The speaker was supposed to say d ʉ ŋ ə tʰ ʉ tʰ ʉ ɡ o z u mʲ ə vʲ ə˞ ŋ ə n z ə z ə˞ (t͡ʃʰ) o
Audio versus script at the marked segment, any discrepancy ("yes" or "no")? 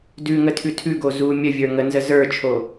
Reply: no